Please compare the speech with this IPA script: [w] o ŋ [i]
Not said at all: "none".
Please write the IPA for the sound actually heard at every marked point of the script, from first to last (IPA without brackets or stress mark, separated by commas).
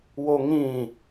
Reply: w, ĩ